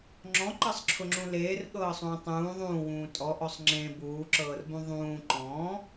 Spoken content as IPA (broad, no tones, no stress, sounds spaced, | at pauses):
ŋ͡ǁ ɔ̃ ǃ ɤ sˤ ǁʰ ʊ ŋ͡ǁ ũ l eː r ɠ ɤː sˤ ũː tˤ ũː ðˤ ũː w ũː tʼ ɔ ʔ ɔ sˤ ŋ͡ǁ ẽ b uː ǁ ɤː r b ũ ðˤ ũː ǃ ɔ̃